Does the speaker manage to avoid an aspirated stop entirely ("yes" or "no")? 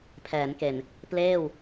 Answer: no